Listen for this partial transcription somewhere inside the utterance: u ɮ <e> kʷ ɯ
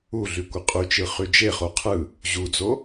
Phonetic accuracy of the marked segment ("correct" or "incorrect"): incorrect